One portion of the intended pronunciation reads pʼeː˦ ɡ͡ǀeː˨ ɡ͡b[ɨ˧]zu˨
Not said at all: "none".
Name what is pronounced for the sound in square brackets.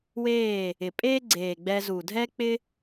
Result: ɛ˧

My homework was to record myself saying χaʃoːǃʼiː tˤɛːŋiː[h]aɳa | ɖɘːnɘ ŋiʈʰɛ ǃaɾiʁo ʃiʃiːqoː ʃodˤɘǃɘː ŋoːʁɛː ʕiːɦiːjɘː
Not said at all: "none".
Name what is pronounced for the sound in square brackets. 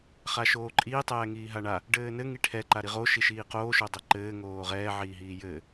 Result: ɦ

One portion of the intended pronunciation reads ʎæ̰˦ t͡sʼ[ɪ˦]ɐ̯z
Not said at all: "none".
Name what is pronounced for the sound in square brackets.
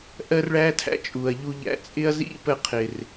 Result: ɪ˦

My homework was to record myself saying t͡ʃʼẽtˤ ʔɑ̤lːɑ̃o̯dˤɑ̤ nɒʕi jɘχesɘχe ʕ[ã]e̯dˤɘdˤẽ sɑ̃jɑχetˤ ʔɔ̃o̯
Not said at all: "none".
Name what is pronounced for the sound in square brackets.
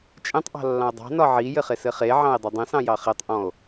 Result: ɑ̃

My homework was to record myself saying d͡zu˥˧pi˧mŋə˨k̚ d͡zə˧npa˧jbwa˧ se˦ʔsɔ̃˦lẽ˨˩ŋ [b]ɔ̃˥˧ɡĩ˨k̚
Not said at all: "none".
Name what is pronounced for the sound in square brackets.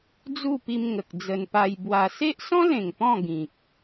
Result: p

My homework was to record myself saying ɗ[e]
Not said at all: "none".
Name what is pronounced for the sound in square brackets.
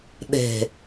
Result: e̤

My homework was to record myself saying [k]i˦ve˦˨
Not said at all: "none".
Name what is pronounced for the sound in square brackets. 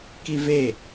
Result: k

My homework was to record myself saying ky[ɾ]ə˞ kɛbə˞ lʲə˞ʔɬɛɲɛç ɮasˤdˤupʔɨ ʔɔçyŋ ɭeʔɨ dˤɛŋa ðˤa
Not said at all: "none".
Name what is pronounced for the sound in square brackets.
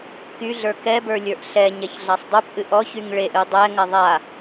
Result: ɮ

